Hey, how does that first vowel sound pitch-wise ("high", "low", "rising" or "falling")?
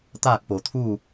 falling